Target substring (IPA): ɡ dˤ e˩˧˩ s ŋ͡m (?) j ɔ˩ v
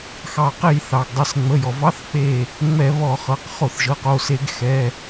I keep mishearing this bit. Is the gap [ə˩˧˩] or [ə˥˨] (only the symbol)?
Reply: ə˩˧˩